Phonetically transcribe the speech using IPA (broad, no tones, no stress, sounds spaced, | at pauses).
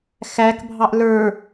x æ k bʱ ɑ ʔ l ə˞